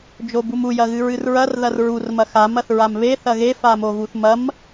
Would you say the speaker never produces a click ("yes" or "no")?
yes